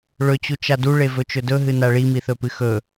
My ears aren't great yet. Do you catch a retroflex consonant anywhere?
yes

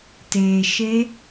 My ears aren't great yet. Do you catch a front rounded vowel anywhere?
no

